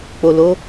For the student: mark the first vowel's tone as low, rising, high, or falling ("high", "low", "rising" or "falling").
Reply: low